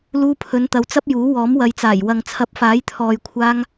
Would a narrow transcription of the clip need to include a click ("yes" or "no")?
no